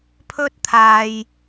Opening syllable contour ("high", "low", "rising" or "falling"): high